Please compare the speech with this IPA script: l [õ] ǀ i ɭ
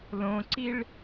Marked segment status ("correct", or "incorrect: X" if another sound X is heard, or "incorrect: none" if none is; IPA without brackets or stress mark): correct